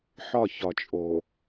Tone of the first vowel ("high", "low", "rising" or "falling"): falling